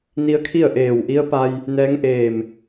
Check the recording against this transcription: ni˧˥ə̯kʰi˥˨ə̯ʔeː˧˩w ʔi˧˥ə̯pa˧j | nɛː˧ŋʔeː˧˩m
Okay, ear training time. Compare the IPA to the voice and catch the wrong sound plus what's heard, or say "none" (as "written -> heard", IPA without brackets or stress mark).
ɛː˧ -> ɛː˧˥